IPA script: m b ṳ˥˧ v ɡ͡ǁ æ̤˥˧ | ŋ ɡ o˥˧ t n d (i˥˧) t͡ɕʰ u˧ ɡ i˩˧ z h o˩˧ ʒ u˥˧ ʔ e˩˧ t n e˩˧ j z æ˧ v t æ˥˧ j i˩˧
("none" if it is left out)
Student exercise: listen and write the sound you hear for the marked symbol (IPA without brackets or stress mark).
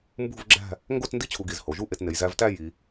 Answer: i˥˧